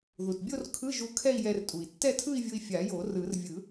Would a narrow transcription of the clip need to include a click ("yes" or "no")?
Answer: no